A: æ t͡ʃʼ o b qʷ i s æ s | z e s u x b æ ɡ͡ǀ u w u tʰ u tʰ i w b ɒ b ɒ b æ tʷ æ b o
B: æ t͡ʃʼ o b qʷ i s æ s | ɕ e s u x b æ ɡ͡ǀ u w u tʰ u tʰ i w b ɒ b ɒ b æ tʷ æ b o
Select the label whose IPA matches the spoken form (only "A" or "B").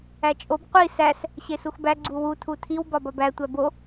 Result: B